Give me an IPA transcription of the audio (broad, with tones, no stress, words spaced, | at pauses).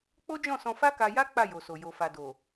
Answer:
k͡po˦d͡ʒɔ̃˦˨sɔ̃˧ fa˦ka˧ja˦ k͡pa˦˨jo˨so˨ jo˨fa˨ do˨